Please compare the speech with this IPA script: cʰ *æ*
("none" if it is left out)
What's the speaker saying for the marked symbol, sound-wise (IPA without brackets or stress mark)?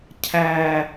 æ